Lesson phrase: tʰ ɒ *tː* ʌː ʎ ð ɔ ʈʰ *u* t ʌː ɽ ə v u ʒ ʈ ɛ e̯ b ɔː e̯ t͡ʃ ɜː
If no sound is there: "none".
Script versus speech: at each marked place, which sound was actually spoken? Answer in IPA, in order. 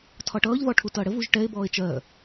ʈ, u

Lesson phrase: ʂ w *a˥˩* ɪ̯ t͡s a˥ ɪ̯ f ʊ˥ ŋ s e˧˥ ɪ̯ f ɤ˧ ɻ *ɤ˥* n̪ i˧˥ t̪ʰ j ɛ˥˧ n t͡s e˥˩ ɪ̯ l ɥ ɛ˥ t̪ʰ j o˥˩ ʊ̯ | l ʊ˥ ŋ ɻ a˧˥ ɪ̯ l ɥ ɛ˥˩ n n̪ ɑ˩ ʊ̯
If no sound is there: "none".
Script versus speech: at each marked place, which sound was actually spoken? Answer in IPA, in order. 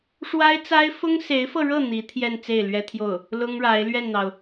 a˥, ɤ˥˩

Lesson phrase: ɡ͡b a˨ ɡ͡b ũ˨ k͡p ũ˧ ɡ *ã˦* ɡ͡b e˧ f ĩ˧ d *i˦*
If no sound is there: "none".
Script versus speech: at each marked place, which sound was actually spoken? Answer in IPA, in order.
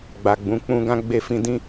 ã˦, ĩ˦

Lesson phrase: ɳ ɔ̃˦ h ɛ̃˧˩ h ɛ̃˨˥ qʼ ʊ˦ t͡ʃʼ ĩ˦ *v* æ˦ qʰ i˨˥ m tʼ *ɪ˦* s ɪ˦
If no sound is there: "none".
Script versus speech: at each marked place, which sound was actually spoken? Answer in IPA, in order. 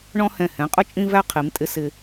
v, ɪ˦

